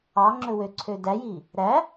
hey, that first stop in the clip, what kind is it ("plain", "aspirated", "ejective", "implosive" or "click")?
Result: click